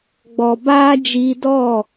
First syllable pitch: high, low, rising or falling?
low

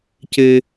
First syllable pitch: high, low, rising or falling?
low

